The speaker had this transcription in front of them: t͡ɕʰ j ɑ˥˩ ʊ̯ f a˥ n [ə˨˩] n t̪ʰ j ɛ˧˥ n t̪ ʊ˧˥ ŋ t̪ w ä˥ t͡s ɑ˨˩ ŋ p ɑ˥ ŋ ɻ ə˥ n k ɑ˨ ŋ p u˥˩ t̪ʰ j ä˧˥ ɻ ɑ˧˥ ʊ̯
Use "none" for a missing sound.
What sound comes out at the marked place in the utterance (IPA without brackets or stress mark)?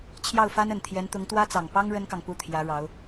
ə˨˩